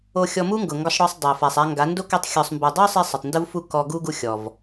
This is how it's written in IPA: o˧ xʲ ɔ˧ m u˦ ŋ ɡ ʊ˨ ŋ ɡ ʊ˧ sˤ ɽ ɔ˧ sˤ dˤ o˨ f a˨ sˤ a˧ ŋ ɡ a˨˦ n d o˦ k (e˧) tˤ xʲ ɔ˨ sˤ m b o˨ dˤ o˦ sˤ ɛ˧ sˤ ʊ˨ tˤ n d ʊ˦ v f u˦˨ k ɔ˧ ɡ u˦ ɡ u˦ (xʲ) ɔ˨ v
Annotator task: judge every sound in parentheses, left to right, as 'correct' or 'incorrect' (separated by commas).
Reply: incorrect, correct